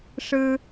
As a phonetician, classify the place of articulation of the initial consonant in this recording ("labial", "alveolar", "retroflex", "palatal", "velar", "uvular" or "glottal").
retroflex